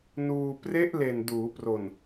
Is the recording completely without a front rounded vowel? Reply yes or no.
yes